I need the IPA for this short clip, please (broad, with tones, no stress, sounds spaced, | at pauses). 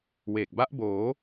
w e˨˩ k̚ b a˦˥ ʔ b oː˩˦